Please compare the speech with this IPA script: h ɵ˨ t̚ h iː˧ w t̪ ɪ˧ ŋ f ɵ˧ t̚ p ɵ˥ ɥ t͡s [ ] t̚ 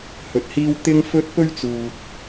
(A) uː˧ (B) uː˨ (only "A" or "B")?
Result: B